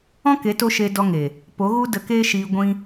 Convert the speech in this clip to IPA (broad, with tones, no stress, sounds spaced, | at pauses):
ɔ̃˦ k e˨˦ t o˧ ʃ e˧ d ɔ˧ ŋ e˨ | p o˨˦ ɣ u˦ d ə˧ k eː˦ ʃ iː˧ ɡʷ ĩ˦